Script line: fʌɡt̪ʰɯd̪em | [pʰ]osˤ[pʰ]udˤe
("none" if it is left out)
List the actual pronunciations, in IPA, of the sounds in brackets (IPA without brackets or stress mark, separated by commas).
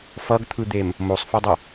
m, f